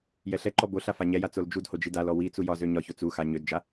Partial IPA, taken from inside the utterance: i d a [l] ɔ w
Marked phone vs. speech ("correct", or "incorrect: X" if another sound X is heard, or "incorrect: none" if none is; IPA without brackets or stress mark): correct